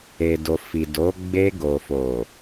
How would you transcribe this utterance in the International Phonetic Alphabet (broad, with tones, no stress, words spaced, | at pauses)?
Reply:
e˨do˨fi˨do˨˦ ɡ͡be˧ ɡo˨fo˨